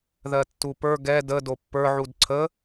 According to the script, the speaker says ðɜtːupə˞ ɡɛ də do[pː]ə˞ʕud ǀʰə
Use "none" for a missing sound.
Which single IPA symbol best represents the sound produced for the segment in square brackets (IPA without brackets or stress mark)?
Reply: pː